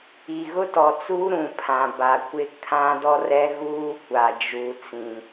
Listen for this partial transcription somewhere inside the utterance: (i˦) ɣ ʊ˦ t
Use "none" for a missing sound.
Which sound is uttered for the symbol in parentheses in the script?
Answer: i˨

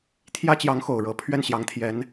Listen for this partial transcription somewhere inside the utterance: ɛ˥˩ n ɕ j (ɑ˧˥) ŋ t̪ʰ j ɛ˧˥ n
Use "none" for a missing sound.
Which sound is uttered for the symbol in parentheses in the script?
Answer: ɑ˧˥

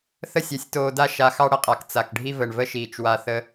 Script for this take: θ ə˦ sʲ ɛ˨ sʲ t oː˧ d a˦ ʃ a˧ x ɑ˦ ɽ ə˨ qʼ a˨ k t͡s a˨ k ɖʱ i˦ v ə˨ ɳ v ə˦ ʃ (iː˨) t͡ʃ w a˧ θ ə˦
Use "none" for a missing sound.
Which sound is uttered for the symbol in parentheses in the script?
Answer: iː˨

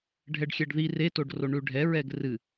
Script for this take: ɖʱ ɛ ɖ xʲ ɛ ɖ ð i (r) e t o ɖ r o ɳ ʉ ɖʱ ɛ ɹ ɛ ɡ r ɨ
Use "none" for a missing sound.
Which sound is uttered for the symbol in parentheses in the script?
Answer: r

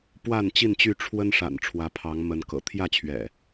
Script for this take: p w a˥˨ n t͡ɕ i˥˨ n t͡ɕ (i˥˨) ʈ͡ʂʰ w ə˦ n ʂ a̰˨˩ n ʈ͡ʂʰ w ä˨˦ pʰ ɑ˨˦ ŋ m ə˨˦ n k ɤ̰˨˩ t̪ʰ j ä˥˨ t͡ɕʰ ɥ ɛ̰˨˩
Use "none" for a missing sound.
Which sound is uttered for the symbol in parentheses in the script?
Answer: y˥˨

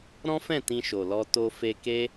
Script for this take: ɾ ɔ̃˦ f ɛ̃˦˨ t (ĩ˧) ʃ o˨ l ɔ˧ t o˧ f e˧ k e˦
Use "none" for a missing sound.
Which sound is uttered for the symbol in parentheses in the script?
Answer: ĩ˧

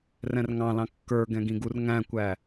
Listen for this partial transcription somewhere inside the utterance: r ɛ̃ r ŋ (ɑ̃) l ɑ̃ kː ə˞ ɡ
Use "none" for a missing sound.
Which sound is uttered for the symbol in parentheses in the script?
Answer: ɑ̃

